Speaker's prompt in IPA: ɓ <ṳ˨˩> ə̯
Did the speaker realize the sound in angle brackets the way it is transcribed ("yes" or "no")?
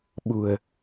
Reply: yes